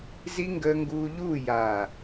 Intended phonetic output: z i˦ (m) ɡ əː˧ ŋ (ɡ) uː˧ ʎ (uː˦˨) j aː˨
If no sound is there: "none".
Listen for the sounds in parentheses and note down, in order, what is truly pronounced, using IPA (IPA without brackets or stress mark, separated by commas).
ŋ, ɡ, uː˦˨